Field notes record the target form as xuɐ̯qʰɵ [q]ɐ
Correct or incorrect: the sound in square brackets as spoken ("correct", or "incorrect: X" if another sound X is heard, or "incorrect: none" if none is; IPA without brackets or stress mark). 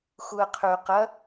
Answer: correct